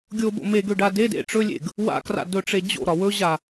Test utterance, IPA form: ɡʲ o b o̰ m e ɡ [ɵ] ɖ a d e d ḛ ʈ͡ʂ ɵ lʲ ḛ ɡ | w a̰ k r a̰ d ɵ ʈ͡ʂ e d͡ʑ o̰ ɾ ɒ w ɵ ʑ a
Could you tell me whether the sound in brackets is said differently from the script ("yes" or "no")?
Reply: yes